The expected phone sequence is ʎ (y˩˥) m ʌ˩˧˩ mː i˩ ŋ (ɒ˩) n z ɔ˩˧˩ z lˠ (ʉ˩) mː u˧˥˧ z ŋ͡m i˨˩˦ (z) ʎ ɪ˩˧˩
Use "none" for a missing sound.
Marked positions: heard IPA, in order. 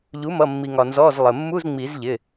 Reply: u˩˥, ɒ˩, ə˩, z

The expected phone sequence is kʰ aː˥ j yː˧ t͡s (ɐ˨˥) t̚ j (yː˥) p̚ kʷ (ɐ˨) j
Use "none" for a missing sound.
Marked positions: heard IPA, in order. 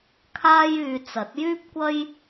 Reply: ɐ˨˥, yː˥, ɐ˥

